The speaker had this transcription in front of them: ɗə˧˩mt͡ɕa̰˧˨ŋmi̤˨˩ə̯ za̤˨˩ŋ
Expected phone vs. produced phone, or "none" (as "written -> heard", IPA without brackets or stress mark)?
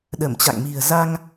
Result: a̤˨˩ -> a˧